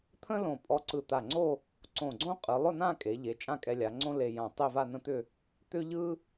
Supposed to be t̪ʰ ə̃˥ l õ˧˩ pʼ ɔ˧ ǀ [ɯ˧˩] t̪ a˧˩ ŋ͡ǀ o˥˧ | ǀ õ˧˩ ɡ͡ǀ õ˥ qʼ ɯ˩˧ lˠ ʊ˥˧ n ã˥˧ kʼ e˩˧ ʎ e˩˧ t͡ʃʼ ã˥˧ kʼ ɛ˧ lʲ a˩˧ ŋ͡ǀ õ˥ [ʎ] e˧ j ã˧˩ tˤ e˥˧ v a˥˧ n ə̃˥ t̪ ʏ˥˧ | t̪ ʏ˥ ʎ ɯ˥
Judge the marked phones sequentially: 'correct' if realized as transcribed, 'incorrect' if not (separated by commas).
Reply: correct, incorrect